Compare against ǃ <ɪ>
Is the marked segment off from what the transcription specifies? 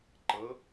yes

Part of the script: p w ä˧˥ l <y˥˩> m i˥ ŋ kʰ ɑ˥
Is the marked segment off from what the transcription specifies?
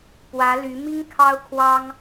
yes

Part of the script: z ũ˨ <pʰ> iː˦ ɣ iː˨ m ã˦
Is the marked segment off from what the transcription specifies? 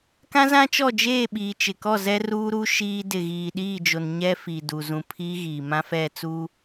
no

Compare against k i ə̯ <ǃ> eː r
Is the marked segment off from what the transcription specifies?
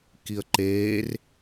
no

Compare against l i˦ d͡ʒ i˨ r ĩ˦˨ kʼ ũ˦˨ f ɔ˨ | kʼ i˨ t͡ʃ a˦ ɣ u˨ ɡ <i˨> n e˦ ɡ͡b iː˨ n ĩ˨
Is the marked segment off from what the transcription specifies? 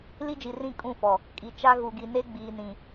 no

